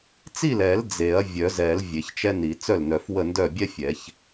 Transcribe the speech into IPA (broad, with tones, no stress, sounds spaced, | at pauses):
t͡s i˥˩ l ɛ˨˩˦ l d͡z e˨˩˦ ɐ̯ vʲ œ˨˩˦ z ɛ˨˩˦ l vʲ e˨˩˦ ç t͡ʃ ɛ˥ n i˨˩˦ t͡s œ˥˩ l n œ˨˩˦ f w ə˥˩ n d œ˥˩ bʲ ɛ˥ fʲ ɛ˨˩˦ ç